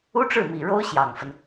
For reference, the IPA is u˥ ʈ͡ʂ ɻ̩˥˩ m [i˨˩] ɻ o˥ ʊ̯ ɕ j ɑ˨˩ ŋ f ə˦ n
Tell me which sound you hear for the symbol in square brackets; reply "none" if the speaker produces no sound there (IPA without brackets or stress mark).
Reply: i˨˩